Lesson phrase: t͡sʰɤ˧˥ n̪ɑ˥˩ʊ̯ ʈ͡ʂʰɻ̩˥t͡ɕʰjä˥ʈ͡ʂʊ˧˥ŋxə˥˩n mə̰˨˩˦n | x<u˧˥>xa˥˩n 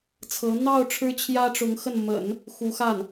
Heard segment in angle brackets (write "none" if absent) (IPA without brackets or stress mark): u˧˥